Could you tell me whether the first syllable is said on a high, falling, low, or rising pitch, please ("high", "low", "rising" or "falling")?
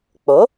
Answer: rising